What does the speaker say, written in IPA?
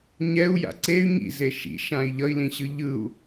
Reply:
ɲ ɛ u̯ j a̰ ǀ e y̯ ɲ ḭ z e ʃ ḭ ʃ ã i̯ ʎ ʌ i̯ l ĩ ɕ ɯ ʎ ɯ u̯

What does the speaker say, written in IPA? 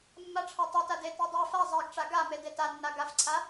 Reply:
mː a ʈ͡ʂʰ a tˤ a t a d e t e dˤ ɛ f a zˤ ɛ ɡ ʈ͡ʂ a ɡ a m e d e t a nː a ɡ a f ǀʰ a

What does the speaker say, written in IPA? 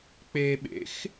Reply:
k͡p e ɓ ḛ x

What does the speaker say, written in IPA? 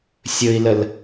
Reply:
sʲ ɵ i̯ l ə l

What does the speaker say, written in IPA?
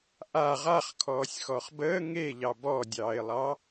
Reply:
ʔ a ʁ a χ kʰ ɔː sʲ x ɔ χ b əː ŋ e ʎ ɑ b ɔ dʲ ɑː ɪ̯ lˠ ɑ

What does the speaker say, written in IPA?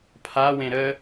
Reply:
pʰ a w ẽ ɾ ə

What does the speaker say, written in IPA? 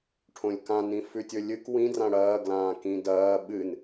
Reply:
ʈʰ õ lʲ k ã n ĩ f ʉ tʲ ɵ lʲ ɨ k w ĩ d r ã ɽ ɐː ɡ l ãː k ĩ d ɐː ɓ ɨ n

